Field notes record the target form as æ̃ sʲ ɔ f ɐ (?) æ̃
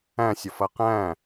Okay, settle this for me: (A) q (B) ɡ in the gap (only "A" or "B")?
A